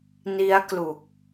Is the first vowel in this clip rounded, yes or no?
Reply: no